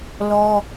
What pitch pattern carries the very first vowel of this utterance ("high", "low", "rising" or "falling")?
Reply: high